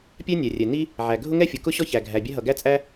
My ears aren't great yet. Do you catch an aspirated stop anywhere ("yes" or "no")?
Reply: no